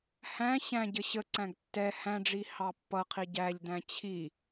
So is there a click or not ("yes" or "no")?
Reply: yes